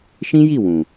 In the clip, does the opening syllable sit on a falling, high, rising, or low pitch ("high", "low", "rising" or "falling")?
high